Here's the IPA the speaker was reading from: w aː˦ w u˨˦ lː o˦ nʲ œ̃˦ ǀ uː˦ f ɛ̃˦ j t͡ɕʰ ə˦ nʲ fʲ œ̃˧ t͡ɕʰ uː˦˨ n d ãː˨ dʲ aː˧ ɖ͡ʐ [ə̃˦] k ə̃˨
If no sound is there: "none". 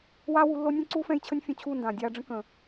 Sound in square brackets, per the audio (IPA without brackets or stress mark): ə̃˦